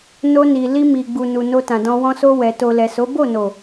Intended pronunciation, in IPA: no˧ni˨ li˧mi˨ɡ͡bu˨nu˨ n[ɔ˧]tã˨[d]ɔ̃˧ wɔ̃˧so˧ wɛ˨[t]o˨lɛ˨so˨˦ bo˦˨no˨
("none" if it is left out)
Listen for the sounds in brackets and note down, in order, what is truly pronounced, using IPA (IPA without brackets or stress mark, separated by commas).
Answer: o˧, d, t